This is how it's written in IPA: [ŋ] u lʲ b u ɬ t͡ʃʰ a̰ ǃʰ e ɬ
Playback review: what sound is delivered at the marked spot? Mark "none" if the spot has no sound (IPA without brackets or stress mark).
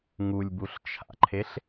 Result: ŋ